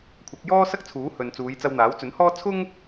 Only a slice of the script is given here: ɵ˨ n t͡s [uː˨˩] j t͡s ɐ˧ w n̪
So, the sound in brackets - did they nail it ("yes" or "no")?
no